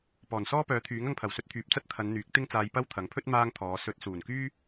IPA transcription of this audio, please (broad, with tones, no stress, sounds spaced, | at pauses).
p ɔː˨˩ n s ɔː˥ p œː˨˥ t̪ʰ yː˨˥ ŋ ɐ˧ ŋ pʰ ɐ˨˩ w s ɵ˧ t̚ t̪ʰ yː˨ p̚ t͡s ɐ˥ t̚ t̪ʰ ɐ˨˧ n n̪ yː˨˥ k̚ t̪ ɪ˥ ŋ t͡s aː˧ j p ɐ˥ w t̪ʰ ɐ˨˥ ŋ pʰ ɵ˥ t̚ m aː˥ ŋ t̪ʰ ɔː˨˧ s ɵ˧ t̚ s uː˨˩ n k yː˥